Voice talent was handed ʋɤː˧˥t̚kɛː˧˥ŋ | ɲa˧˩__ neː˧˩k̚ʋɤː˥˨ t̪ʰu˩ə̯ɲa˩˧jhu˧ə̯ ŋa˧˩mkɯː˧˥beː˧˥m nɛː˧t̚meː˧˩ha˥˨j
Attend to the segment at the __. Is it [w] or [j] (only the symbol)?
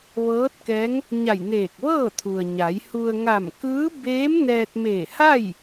j